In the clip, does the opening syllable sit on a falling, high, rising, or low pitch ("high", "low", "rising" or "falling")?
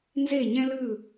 falling